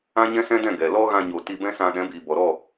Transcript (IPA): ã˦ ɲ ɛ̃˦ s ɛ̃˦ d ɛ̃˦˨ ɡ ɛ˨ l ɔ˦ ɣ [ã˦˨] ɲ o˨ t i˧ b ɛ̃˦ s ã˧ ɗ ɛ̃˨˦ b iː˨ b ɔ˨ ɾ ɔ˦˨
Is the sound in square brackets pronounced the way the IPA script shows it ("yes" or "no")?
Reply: no